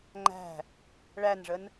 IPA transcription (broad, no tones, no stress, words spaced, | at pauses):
ŋ͡ǃæ̤ | ɭænʐən